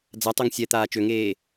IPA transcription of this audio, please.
d͡z a tˤ o ŋ sʲ ɛ t̪ aː t͡ʃ ø ŋ eː

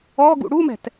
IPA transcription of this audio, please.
ɔ ɡ ṵ ɽ u m ɛ̤ t

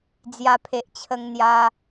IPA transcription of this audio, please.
d͡z j a˧ pʰ e˨ ʔ t͡ɕʰ ə˧ ŋ n̪ j a˧

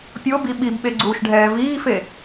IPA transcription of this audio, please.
pʲ o b i ɓ i b ɓ e ɡ͡ǀ uː ʃ ɖʱ ɛː v iː f e

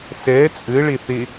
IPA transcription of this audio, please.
s ɛ t͡sʼ ɘ ɭ e θ e

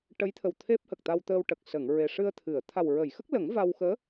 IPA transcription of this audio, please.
ʈ ə˧˥ j t̪ʰ ə˨˩ w t̪ʰ e˦˥ p̚ h ə˨˩ k̚ t̪ a˧ w t̪ əː˧ w ʈ ə˨˩ k̚ s ə˨˩˨ ŋ ɹ e˨˩ ʂ ɨ˧ ə̯ t̪ʰ ɨ˨˩˨ ə̯ t̪ʰ a˨˩ w ɹ ə˨˩˨ j x ə˦˥ k̚ l ə˨˩˦ ŋ v a˧ w x əː˧˥

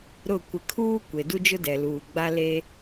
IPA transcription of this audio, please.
ɾ ʊ˦˨ kʷ ɪ˨ kʰ uː˦ kʷ e˨ d u˦ d͡ʒ ʊ˦ d ɛ˨ l uː˨ ɡ͡b a˦ l e˦

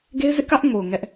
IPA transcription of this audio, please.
ɡ e˦ ɪ̯ z ɪ˦ ʔ k ä˦ ʔ ŋ o˨ ʊ̯ ŋ ɛ˦ ʔ

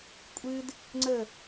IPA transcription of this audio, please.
kʷʼ ɨ d | ŋ͡ǀ ə

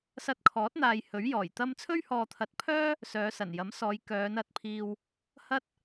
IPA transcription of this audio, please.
s ɐ˧ t̚ kʰ ɔː˨˥ t̚ n̪ aː˨ j h ɵ˨˥ ɥ j ɔː˨˩ j t̪ ɐ˥ m t͡sʰ ɵ˥ ɥ h ɔː˨ t̪ʰ ɐ˨˥ t̚ pʰ œː˥ | s œː˨˧ s ɐ˨˩ n j ɐ˨˥ m s ɔː˨˧ j k œː˨˧ n ɐ˨˥ t̚ pʰ iː˧ w | h ɐ˥ t̚

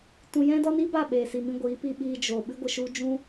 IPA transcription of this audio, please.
t ũ˧ j ɛ̃˦ d ɔ˦ n i˦ b a˦˨ ɓ eː˧ s i˧ m ĩ˦ ɡʷ iː˨˦ p i˧ ɓ iː˧ d͡ʒ o˨ ɓ ɨ˦ ɡʷ ə˧ ʃ u˦ d͡ʒ ũ˦

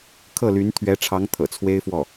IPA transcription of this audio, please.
kʰ ɤ˥˩ l y˧˥ n t̪ʰ ɥ ɛ˧˥ ʈ͡ʂʰ ɑ˧˥ ŋ t̪ʰ ɤ̰˨˩ t͡sʰ w e˥ ɪ̯ f w ɔ˥˩

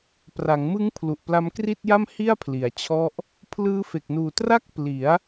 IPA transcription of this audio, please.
p r a˩˦ ŋ m ɯ˦˥ ŋ pʰ l u˨˩ ʔ p l a˦˥ m k r i˥˩ t̚ j a˥˩ m h i˥˩ a̯ pʰ l i˩˦ a̯ t͡ɕʰ ɔ˦˥ ʔ | pʰ l ɯː˦˥ f e˨˩ k̚ n uː˨˩ t r a˥˩ k̚ p l i˩˦ a̯

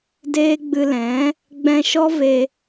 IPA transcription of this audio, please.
d eː˦ ɡ͡b ɨ˧ l ɛ̃˨˦ | ɡ͡b ɛ̃˧ ʃ ɔ˦ v e˧

